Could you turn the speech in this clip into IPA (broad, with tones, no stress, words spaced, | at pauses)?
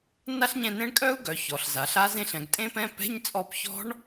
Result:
na˦˥ɬɲɛ̃˦˨nẽ˦˥ɳ kʼœ˦˥u̯ɡœ˩˧ çɔ˩˧ɬza˩˧ɬa˦˥zẽ˦˥ɬ ɛ̃˩˧ɡtʼẽ˦˥pɛ̃˧˥˧ pɛ̤˧˥˧ɲt͡sʼɔ˦˨pçɔ̤˦˥ɳ